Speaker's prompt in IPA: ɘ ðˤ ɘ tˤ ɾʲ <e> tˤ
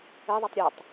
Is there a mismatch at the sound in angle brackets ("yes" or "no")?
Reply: yes